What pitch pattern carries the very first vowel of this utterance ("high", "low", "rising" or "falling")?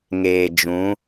low